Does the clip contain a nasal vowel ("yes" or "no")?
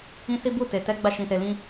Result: yes